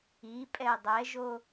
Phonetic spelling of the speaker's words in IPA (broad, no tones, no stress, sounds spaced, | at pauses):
i pʼ ɛ dˤ ɛ ʒ o